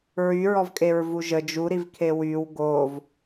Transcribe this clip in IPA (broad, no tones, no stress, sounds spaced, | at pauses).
ɹ y ɹ ɔ v kʼ e ɹ v u ʒ ə d͡ʒ u ɾ i v kʰ e w y w ɡ o v